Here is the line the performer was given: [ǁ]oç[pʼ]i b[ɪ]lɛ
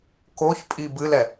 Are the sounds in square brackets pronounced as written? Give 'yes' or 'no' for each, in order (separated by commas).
no, yes, no